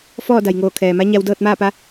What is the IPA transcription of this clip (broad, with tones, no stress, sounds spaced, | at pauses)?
f ɔː˥˨ d a˩ j ŋ oː˧˩ kʰ ɛː˩ m a˧˥ ɲ a˧ w d ɤː˥˨ t̚ m aː˥˨ p a˧˥